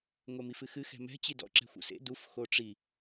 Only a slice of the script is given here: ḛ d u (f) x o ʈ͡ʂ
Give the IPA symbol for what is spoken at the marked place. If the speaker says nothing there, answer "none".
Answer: f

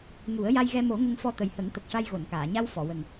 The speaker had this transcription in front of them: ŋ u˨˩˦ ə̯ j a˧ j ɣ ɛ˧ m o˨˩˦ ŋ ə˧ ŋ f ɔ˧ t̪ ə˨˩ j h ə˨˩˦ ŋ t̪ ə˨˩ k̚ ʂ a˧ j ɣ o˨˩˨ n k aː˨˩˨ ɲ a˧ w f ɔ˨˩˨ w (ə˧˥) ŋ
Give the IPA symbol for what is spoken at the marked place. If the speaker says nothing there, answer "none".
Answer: ə˨˩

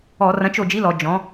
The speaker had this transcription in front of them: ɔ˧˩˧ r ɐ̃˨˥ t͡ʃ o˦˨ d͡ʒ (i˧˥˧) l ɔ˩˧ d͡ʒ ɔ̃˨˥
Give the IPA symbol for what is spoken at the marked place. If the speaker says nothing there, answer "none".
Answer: i˧˥˧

